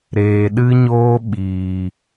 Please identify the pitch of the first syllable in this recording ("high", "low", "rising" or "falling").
low